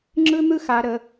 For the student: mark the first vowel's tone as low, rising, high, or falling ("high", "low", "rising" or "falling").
high